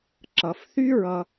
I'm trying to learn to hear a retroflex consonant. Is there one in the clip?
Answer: no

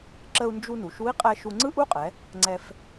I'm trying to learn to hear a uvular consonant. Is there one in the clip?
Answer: yes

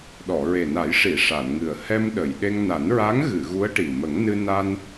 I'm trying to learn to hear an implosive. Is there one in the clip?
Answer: yes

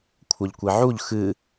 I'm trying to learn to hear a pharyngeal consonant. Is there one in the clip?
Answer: yes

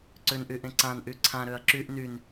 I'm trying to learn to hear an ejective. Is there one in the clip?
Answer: no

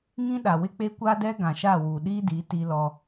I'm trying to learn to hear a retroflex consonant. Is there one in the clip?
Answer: no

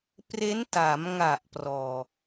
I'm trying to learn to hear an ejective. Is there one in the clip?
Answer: no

